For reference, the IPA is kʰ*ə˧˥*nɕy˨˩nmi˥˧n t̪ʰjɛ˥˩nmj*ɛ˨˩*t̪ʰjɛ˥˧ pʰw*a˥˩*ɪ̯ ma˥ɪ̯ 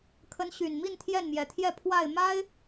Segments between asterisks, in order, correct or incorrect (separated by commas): correct, correct, correct